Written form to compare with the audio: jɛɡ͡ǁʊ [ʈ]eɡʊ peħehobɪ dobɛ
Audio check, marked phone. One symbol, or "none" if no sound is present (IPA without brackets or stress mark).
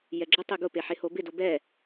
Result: tˤ